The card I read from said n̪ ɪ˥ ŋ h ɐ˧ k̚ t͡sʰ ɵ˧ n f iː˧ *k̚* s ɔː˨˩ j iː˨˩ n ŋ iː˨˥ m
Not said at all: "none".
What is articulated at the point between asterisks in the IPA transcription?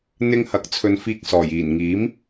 k̚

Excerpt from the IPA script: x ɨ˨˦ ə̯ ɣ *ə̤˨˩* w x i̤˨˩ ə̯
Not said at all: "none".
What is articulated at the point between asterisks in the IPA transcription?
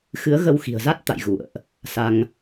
ə˧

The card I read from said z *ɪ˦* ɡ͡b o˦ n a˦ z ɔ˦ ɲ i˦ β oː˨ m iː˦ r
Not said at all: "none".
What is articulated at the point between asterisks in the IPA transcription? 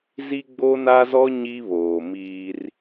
i˦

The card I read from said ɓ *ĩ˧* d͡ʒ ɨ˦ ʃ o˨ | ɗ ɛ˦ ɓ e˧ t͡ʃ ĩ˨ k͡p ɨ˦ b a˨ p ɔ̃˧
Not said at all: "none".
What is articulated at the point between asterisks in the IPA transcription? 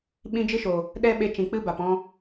ĩ˦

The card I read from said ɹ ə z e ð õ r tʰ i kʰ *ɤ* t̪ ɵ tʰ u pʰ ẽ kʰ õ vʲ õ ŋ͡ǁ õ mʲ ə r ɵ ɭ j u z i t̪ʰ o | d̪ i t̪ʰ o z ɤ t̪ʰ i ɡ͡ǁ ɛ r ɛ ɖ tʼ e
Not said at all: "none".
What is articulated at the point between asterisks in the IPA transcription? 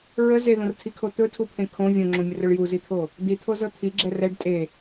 o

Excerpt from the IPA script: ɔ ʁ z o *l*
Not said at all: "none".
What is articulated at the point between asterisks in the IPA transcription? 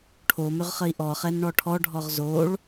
ɭ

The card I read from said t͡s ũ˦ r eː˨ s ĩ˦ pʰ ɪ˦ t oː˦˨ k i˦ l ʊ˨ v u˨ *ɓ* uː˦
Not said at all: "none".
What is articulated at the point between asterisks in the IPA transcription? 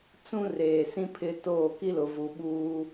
ɓ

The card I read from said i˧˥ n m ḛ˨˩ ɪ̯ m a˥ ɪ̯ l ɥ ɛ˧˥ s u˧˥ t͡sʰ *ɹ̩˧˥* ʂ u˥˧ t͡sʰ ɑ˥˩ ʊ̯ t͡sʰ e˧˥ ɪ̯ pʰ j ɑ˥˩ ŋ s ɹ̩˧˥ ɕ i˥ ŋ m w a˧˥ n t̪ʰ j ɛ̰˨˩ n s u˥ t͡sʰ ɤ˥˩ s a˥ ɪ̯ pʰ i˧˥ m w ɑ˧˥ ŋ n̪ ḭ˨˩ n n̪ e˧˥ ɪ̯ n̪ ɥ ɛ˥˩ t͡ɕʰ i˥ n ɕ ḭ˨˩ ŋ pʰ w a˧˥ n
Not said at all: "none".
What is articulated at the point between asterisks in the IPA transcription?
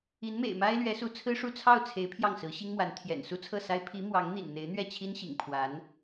ɹ̩˥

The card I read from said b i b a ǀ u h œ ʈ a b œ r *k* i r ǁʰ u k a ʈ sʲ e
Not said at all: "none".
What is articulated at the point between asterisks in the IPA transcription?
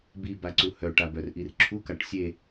ʔ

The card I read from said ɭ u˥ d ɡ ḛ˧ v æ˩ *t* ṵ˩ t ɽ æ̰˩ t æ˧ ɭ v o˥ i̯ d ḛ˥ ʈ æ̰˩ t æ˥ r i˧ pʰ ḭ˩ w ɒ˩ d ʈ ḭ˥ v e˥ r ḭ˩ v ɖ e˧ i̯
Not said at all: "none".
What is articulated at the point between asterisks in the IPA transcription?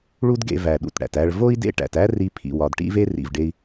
ɗ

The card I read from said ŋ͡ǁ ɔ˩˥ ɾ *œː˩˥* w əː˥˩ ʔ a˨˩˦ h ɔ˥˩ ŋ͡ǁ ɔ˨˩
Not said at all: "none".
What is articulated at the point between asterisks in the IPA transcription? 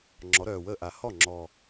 œː˨˩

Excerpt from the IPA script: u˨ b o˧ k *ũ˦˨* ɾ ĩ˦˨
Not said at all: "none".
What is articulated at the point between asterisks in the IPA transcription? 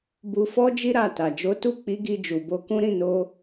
ũ˦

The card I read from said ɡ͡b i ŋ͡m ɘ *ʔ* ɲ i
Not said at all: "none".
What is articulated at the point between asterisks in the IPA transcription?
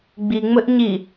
ʔ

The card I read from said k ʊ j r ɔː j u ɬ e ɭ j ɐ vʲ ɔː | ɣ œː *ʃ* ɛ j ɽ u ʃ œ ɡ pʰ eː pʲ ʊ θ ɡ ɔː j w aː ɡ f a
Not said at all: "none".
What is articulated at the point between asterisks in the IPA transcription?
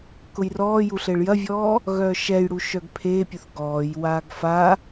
ʃ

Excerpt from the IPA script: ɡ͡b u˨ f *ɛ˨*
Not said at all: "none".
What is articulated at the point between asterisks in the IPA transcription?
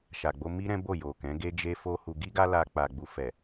ɛ˨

